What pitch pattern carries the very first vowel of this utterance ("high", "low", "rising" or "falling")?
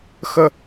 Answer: high